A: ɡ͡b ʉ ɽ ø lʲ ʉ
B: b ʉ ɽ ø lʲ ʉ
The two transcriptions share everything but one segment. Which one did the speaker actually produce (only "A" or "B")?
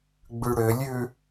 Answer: A